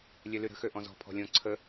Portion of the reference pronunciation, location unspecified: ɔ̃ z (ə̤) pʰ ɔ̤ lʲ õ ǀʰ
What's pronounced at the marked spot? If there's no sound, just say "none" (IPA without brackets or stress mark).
ɔ̤